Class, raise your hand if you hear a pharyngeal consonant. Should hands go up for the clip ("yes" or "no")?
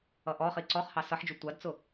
yes